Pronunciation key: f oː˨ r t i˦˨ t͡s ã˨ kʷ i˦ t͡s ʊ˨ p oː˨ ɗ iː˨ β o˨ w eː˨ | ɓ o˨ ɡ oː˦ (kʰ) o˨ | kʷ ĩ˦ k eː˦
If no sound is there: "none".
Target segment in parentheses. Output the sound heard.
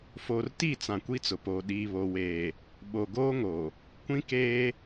ŋ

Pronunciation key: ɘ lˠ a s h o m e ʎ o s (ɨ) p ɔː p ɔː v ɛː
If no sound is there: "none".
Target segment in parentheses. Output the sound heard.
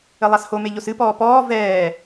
ɨ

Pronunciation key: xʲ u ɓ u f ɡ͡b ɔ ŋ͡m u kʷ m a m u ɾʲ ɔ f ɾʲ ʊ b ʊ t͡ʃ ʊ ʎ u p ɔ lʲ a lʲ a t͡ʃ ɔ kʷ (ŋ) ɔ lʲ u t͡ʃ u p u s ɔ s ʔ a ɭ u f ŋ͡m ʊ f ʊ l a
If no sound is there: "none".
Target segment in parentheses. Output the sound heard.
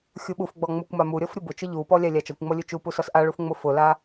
ŋ͡m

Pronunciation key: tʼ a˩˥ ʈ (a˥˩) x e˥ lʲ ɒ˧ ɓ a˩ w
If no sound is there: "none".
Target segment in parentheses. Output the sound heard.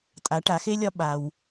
a˩˥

